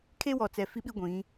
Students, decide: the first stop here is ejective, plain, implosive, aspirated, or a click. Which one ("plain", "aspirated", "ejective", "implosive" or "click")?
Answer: aspirated